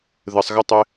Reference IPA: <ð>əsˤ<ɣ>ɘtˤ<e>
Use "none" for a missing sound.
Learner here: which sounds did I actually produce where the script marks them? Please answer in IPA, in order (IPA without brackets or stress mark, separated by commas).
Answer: ð, ɣ, ɘ